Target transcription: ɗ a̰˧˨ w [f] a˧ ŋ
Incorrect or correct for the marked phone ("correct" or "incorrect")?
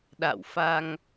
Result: correct